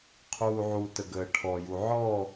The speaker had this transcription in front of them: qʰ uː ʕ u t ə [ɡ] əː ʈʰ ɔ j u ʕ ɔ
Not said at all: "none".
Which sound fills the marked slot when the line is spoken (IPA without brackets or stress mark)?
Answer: ɡ